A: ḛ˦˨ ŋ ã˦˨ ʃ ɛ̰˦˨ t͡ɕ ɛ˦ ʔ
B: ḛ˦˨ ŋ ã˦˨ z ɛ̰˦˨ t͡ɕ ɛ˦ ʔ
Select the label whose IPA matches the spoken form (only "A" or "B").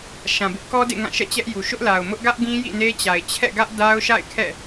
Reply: A